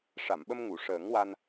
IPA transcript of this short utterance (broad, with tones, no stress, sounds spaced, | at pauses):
ʂ a˨˩˨ m ɓ ə˧ m ŋ u˨˩˨ ʂ əː˨˩˦ ŋ w a˧ n